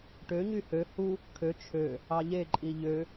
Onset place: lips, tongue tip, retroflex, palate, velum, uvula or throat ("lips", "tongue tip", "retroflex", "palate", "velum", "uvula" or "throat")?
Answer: retroflex